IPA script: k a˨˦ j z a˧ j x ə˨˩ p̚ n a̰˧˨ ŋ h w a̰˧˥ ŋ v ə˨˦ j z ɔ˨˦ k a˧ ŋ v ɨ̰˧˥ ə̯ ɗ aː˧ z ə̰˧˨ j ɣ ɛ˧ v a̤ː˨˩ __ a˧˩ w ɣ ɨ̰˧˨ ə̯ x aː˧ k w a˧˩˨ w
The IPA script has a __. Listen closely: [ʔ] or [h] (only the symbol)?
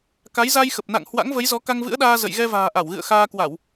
ʔ